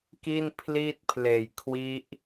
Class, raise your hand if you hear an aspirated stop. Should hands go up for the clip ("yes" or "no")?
yes